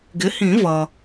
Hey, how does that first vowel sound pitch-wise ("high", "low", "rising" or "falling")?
rising